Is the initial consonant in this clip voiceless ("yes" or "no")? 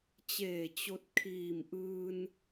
yes